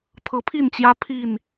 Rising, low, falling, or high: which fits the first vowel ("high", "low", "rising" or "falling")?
rising